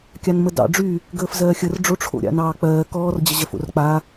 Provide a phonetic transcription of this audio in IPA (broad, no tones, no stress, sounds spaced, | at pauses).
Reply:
kʲ a n m ə d ɑ̰ ɖ͡ʐ y | ɡ əː f z ɜː xʲ ə r ɖ͡ʐ o ʈ͡ʂʰ o̰ ɾʲ a̰ n ɑː k͡p ɜː k ɔː r d͡ʑ ə ʑ ɜ f o̰ r k͡p a